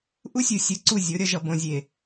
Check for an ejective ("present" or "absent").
absent